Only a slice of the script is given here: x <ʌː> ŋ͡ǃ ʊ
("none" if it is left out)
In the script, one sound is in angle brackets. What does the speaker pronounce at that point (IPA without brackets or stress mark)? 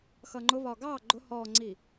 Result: ʌː